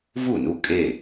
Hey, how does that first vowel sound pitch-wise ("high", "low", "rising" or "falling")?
falling